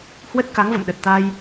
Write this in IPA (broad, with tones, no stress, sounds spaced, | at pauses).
h w ə˦˥ t̚ k a˨˦ ŋ v ə̰˧˨ m ɗ ə˨˩ t̚ t̪ a˧ j